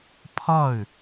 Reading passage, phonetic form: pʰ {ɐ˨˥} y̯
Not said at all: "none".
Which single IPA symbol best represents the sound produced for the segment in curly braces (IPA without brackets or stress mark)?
ɐ˥˨